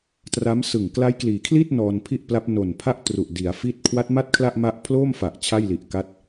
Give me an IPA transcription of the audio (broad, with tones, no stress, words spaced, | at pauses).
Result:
tra˦˥msɯ˨˩ŋ kla˦˥jkliː˩˦kʰli˥˩t̚ nɔː˧npʰi˥˩ʔpla˦˥p̚ no˨˩npʰa˥˩ʔ tru˨˩ʔ di˩˦a̯fi˥˩t̚ kʰwa˦˥t̚ma˥˩t̚kʰla˥˩ʔ ma˦˥ʔpʰloː˥˩mfa˨˩ʔ t͡ɕʰa˥˩jli˨˩ʔka˦˥t̚